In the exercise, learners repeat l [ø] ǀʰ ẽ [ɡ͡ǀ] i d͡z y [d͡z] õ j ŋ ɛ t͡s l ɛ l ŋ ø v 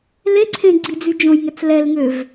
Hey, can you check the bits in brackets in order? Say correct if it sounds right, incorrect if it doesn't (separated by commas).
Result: incorrect, correct, incorrect